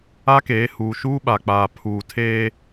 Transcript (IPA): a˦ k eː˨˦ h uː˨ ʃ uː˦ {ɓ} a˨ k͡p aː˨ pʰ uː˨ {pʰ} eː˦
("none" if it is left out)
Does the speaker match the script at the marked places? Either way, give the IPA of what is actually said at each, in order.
ɓ, tʰ

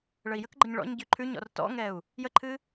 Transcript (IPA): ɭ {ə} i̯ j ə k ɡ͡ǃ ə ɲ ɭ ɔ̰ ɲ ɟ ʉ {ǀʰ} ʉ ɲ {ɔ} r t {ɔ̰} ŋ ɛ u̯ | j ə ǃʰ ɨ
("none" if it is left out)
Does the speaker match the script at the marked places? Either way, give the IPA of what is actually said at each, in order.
ə, ǃʰ, ɔ̰, ɔ̰

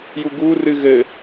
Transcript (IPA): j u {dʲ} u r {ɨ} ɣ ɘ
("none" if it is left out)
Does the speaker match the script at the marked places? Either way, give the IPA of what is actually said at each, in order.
ɡ, ɨ

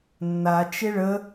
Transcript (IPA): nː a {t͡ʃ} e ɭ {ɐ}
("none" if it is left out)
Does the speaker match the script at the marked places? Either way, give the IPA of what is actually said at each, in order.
t͡ʃ, ə

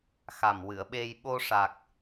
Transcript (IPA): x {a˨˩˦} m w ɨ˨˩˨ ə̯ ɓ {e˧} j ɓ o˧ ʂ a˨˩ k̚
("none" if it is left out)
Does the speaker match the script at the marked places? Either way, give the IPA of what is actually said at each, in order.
a˨˩, e˧

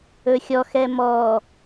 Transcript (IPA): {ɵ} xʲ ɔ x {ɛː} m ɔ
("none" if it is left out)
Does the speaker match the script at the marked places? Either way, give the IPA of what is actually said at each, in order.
ɵ, ɛ

